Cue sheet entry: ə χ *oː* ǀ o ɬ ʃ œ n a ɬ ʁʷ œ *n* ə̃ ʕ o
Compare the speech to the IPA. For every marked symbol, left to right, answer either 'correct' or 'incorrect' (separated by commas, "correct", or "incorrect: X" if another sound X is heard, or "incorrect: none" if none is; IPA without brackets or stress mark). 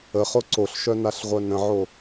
incorrect: o, correct